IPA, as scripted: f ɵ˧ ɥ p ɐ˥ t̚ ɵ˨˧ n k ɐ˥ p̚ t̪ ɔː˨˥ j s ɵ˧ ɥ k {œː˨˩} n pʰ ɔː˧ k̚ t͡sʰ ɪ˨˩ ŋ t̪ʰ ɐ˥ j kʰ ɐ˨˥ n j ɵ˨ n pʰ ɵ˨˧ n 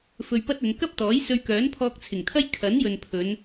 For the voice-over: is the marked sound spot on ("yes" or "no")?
no